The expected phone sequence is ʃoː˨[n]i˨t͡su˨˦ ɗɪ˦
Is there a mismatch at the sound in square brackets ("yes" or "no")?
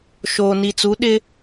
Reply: no